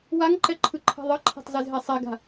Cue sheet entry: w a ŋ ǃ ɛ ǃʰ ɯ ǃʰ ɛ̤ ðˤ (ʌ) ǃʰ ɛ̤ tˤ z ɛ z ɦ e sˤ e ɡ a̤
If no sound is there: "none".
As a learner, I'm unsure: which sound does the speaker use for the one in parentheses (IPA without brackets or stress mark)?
ʌ